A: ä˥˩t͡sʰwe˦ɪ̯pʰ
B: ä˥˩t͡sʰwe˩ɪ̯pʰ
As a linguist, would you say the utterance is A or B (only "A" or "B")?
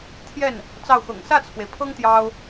B